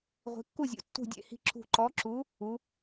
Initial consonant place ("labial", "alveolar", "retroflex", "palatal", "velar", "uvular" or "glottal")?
uvular